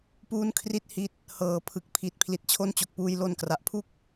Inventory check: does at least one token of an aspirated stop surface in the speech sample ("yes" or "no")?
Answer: yes